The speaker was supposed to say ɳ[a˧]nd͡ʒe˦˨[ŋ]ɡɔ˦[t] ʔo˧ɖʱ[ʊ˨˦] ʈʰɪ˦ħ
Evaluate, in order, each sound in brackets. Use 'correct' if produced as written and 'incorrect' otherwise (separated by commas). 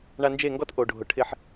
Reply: correct, correct, correct, incorrect